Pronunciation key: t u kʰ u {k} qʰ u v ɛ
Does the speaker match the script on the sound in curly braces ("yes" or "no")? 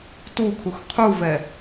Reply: no